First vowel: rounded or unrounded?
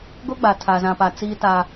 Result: rounded